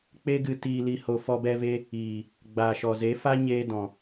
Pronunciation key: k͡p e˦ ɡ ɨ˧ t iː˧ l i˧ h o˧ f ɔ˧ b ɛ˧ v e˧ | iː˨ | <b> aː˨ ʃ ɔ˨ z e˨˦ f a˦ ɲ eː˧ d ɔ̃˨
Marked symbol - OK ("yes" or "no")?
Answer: no